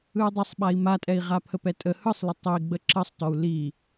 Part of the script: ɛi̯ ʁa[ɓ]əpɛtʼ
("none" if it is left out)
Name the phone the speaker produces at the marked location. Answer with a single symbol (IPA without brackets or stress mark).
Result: pʰ